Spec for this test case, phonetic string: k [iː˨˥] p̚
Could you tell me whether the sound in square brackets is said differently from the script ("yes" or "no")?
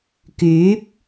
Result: yes